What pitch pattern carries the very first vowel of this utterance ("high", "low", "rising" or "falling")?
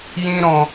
high